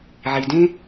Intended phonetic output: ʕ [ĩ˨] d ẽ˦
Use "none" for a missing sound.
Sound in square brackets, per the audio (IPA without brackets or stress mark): i˨